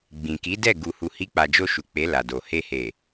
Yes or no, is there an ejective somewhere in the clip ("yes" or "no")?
no